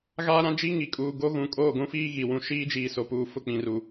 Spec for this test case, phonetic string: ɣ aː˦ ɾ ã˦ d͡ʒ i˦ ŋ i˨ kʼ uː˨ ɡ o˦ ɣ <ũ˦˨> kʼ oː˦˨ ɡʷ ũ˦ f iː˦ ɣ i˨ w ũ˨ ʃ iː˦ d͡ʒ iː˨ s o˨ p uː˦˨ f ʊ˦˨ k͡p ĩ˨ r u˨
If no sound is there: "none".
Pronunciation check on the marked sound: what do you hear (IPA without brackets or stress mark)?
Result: ũ˨